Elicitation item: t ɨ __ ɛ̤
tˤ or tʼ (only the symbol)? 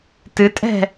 tʼ